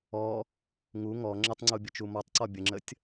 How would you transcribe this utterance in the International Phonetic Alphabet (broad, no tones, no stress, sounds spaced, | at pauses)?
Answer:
ɔ | ŋ u ŋ ɔ ŋ͡ǁ ə tˤ ŋ͡ǀ u bʲ ə t͡ʃ u m ɔ tˤ ǀ ɔ bʲ ə ŋ͡ǁ ə tʲ